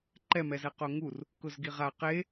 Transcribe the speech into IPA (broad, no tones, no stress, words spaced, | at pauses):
ǃɛmɛzɛ qoŋur | kʊzɡiʁa qe